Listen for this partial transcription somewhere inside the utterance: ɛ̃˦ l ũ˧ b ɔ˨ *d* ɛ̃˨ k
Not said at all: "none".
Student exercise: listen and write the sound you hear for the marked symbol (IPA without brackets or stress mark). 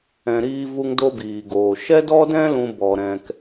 ɾ